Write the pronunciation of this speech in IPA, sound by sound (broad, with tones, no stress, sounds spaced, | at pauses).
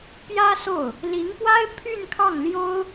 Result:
p j ä˥ s o˥˩ ʊ̯ | l i˧˥ ŋ p w a˥ ɪ̯ pʰ y˥˧ n kʰ ɑ˥˩ ŋ l j o˥ ʊ̯